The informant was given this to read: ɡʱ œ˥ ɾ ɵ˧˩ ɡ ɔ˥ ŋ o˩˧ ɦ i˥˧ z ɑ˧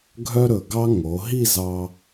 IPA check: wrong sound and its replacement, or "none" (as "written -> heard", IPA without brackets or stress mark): ɔ˥ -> ɑ˥